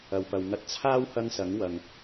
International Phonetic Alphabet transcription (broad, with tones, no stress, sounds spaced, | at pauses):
ɐ˨ w p ɐ˨ w ŋ ɐ˧ t̚ t͡sʰ aː˥ w h ɐ˧ ŋ s ɐ˨˧ ŋ w ɐ˨ ŋ